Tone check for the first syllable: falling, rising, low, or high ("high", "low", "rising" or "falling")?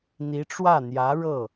rising